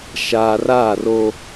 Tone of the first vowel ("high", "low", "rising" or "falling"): low